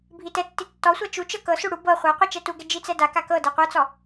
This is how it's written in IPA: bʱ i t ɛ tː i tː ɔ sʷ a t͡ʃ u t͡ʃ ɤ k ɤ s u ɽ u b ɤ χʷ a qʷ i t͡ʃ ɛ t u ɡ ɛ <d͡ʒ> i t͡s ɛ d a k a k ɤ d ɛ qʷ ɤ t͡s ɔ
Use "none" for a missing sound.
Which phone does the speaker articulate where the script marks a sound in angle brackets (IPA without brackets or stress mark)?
d͡ʒ